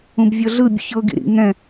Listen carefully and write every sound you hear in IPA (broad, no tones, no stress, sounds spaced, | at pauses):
ũ b vʲ ɤ ɮ ɯ bʲ ṵ ç ɤ ɡ ḭ ɾ ḭ ŋ ɛ̃